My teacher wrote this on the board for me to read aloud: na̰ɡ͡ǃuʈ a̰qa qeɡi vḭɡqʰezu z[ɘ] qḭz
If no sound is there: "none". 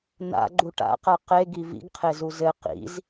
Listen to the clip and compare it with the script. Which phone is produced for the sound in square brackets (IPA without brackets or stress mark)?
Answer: ɘ